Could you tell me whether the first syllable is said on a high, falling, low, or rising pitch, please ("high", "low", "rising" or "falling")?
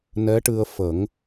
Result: rising